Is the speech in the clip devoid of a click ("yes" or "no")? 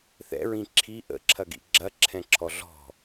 no